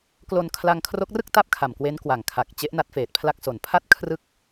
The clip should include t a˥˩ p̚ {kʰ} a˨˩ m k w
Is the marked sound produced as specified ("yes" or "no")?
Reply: yes